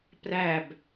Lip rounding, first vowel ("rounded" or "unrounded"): unrounded